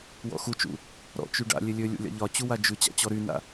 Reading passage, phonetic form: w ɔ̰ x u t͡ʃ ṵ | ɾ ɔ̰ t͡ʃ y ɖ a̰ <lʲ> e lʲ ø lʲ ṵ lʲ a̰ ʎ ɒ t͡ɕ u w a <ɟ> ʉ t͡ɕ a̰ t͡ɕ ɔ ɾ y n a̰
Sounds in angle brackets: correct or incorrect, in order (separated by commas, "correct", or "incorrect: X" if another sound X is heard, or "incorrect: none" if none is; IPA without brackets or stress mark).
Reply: correct, incorrect: d͡ʒ